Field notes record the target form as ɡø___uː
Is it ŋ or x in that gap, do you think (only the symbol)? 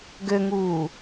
ŋ